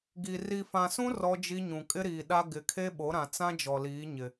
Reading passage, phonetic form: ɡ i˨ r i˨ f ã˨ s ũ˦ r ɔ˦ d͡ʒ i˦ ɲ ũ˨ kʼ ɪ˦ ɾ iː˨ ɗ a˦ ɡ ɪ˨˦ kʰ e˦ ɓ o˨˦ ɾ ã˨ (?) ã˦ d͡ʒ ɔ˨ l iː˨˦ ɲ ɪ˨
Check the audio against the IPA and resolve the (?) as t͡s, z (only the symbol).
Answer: t͡s